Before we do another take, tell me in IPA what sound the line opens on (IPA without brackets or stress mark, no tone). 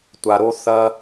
tʷ